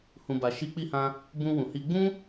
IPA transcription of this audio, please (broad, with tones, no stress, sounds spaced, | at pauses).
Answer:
h ũ˨ b a˨ ʃ i˨˦ k͡p i˧ h ã˧ | b ũ˧ w ũ˨ h i˧ ɡ͡b ũ˦